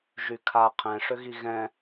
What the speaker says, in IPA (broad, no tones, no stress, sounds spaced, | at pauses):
ʒ y kʰ a qʰ ɛ̃ ʂ ʏ ɣ i ɣ ɛ̃